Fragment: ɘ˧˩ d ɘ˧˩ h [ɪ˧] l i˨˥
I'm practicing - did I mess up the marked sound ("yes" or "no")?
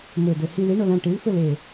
yes